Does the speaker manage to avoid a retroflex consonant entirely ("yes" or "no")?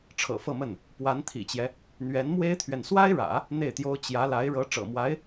no